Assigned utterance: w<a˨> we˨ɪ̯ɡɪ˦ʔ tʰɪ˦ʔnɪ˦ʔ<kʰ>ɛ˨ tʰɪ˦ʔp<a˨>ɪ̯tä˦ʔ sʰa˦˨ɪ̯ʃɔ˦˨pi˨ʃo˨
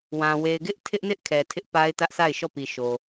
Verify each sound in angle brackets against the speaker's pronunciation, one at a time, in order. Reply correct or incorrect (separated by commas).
incorrect, correct, incorrect